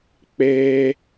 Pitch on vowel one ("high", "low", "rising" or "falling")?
high